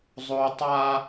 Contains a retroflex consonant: no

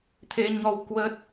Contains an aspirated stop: yes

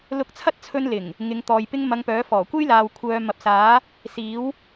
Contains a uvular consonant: no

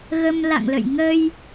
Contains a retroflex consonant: no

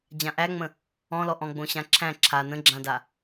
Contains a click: yes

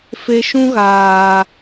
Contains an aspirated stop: no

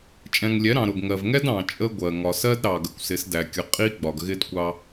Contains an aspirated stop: no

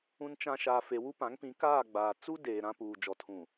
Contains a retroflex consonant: no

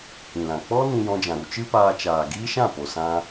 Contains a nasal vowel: yes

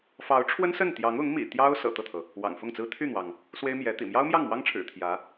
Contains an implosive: no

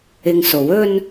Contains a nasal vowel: no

